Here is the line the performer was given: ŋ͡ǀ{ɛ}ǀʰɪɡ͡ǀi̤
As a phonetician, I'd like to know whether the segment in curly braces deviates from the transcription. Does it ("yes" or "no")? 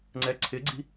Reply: no